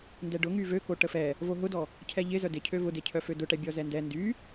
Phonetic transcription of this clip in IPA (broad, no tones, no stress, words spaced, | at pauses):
ndɛɖʊ ŋyvøko ʈəfɛ | voɦʊdɔ | cʰɛʎɪzœ dɪcʰø vʊdecʰœfø dʊʈɛbʲɔ zɛndɛ ndy